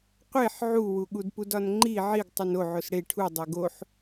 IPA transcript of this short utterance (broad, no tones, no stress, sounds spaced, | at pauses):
qʷ e ħ ʕ u w u ɠ u d p u d ɒ n ŋ͡ǃ i ʕ i ɡ tˤ u n o ʕ o s ɽ e ʈʰ u dˤ e ɡ o ħ